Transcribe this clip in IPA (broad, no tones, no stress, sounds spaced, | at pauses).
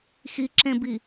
x i ǁ ẽ b i